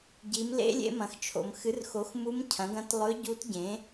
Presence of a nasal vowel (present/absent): present